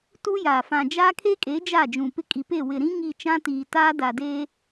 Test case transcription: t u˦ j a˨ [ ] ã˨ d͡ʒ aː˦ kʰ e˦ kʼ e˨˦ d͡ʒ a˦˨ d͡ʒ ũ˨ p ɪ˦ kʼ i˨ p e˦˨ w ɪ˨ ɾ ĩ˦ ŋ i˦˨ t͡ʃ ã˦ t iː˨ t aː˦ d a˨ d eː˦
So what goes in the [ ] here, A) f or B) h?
A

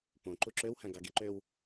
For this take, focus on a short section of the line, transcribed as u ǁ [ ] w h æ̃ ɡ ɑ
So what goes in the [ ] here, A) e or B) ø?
B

